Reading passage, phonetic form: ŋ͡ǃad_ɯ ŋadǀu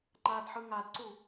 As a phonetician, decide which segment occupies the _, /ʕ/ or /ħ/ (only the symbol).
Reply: ħ